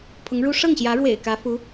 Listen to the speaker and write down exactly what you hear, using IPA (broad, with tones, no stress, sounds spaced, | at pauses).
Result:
pʰ ʊ˧˥ ŋ ɻ u˥ ʂ ɤ˥˩ ŋ ɕ j ä˧˥ ɻ w ḛ˨˩ ɪ̯ k ä˧˥ f u˧˥